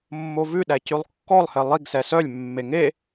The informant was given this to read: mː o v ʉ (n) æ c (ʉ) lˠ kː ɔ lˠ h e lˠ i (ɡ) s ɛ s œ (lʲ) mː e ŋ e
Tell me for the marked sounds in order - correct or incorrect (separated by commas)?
incorrect, correct, correct, correct